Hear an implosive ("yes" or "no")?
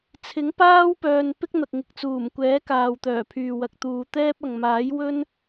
no